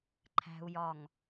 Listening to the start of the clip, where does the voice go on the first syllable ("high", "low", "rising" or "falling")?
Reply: low